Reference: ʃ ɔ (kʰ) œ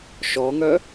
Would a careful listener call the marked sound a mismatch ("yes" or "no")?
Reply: yes